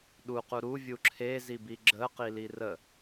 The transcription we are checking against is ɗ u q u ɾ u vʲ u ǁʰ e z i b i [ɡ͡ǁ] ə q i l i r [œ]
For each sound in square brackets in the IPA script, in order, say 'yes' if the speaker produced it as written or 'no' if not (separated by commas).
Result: yes, no